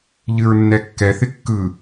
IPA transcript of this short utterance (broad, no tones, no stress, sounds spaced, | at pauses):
ʎ ɨ ɹ nː ɛ kː ɛ θ ɪ kː ɯ